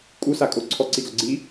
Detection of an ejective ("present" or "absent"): present